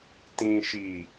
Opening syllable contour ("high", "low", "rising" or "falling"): low